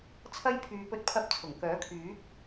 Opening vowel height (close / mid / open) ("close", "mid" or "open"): open